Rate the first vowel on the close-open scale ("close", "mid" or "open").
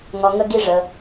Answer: open